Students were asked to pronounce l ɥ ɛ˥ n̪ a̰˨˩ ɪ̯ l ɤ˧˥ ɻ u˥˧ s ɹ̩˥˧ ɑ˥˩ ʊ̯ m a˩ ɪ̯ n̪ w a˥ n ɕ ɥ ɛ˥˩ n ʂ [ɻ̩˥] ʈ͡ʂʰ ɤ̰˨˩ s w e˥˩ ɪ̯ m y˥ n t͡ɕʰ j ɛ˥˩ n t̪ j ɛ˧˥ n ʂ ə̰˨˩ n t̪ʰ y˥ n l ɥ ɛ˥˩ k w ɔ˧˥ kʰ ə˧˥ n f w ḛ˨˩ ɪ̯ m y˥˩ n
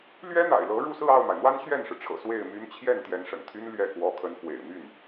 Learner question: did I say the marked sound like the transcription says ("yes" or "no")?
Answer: no